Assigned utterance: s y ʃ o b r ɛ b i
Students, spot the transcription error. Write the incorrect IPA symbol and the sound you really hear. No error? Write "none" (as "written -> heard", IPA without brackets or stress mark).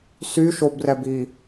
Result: none